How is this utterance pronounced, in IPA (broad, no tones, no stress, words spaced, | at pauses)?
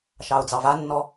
ʃɑʊ̯d͡zɑvanːɔ